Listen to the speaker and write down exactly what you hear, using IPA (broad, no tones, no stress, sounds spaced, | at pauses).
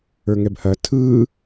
ə˞ ŋ ɛ b h ɐ tʰ ɯ